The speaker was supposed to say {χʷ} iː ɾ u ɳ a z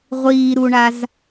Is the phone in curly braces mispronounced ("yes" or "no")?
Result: yes